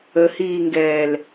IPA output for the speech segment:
ə h iː ŋ ɡ ɛː l

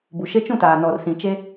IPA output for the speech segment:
b u˨ ʃ e˦ t͡ʃ ũ˦˨ t aː˨ n ɔ˨ r s ĩ˨ t͡ʃ e˦

